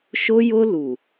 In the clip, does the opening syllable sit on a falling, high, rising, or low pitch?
high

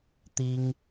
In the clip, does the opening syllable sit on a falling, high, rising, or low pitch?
high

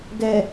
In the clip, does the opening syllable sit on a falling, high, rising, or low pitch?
low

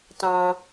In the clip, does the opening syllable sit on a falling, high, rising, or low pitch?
low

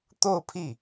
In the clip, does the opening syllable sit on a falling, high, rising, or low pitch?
falling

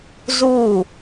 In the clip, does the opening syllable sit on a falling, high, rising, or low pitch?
falling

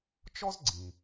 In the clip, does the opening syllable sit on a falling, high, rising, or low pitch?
high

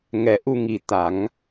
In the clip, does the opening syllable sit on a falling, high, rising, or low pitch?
low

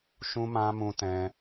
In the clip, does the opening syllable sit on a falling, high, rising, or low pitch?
high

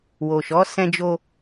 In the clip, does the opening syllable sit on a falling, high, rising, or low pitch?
low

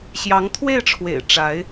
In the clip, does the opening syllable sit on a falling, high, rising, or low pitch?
rising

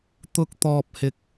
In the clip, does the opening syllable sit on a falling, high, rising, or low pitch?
high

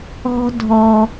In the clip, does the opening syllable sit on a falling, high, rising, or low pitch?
high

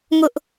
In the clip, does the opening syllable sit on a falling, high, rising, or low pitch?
high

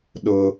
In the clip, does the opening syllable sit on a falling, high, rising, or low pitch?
low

